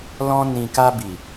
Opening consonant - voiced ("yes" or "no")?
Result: yes